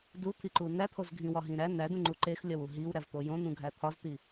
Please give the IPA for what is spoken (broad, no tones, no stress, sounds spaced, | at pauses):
d u t̪ʰ i ǃ u n æ t̪ʰ o z ɡʱ ĩ w ɒ ɦ ĩ ɾ æ n æ d ũ ŋ͡ǃ u ǃ e x lʲ ɒ w u ɦ i w ɾ æ v t̪ o j õ n̪ ũ ɡʱ æ t̪ʰ ɒ z t̪ i